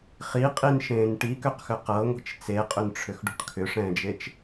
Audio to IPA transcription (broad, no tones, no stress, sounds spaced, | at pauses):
χ i qʼ i n ʃ ẽː n ʈ i k ø q x ʏ q ɤ ŋʷ i̤ t͡ʃ t͡s e qʼ ʏ n ʈ͡ʂʰ ʏ x ɖ ṳ ʈ kʰ ʏ ʂ ɛ̃ː d͡ʒ e t͡ʃ